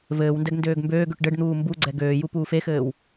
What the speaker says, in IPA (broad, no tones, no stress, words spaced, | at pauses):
vɘːwndɛɡ ndøːɡmbøːɡøʈ ɖɘɖn̪uː mbuɡ͡ǀɛ ɡøːju puːfexɘːw